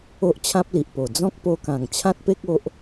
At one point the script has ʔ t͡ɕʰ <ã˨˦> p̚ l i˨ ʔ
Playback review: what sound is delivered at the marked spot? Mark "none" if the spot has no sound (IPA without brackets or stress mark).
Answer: ã˦